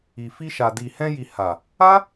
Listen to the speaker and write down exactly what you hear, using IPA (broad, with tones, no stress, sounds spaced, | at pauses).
i˨ f i˧ ʃ a˨ d i˨ h ɛ̃˧ j i˨ h a˨ | a˦